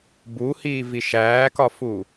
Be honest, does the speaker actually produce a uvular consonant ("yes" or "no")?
no